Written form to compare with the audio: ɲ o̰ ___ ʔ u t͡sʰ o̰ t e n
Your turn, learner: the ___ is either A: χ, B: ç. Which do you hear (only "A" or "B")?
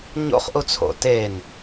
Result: A